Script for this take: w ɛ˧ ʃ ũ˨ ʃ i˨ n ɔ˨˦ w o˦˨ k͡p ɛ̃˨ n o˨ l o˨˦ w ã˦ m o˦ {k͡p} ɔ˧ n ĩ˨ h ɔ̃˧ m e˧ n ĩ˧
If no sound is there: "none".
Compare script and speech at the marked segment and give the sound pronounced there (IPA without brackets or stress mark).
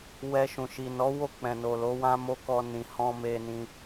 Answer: k